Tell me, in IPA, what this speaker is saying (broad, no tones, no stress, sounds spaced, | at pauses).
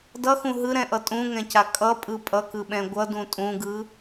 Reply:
d ʌ x ũ ɦ ɯ ɾ ɛ̃ ʔ ʌ tʼ ũ ŋ ɛ̃ c a kʼ ʌ pʼ ɯ pʼ ʌ k ɯ ɓ ɛ̃ ɡʷ ʌ d ũ tʼ ũ ɡ ɯ